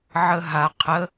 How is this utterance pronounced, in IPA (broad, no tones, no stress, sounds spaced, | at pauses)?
ʕ ə ɦ a qʰ ə